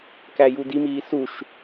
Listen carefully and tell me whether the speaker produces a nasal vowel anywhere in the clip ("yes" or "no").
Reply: no